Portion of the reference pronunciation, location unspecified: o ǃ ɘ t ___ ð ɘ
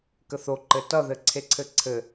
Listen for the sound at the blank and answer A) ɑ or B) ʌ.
B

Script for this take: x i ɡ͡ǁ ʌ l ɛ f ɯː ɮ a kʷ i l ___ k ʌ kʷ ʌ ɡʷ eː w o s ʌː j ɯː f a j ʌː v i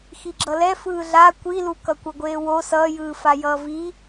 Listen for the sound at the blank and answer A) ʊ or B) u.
B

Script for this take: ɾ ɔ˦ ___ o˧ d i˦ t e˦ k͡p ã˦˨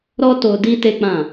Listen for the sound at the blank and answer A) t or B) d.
A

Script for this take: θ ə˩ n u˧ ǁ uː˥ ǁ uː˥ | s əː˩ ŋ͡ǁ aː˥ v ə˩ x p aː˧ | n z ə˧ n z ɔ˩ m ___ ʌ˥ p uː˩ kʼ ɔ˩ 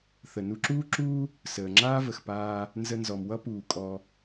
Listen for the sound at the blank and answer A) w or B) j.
A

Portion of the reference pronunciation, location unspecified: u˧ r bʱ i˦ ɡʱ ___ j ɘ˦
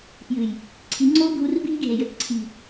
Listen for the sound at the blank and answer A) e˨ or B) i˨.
A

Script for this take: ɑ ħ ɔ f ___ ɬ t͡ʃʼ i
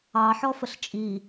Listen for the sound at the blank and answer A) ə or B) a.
A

